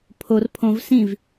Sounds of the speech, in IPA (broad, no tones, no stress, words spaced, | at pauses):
pʰor pʰõv sĩv